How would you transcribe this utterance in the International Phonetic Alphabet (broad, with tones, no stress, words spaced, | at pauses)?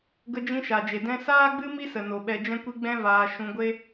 ɡə˧d͡ʒĩ˧ʃa˨d͡ʒe˨ dɛ̃˧saː˦ɡ͡bɨ˦ mi˦sə˨no˨ ɓɛ˧d͡ʒɛ̃˦kʷi˦ ɡ͡bɛ̃˦vaː˧ ʃũ˧ɡʷe˦